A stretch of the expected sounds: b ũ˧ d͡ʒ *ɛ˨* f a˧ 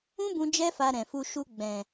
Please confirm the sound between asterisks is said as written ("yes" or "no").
no